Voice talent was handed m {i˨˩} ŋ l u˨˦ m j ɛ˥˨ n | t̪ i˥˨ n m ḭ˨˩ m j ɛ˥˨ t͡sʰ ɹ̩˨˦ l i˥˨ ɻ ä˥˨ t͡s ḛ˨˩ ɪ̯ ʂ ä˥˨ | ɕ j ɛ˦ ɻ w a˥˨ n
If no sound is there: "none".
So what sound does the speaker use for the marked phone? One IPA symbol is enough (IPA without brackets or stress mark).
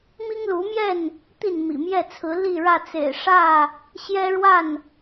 i˦